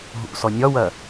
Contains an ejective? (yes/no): no